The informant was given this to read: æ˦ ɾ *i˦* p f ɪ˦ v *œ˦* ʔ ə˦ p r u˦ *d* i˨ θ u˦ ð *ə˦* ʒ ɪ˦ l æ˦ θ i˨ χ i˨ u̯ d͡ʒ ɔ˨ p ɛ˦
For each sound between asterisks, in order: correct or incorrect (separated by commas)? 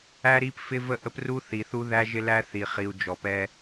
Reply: correct, incorrect, incorrect, incorrect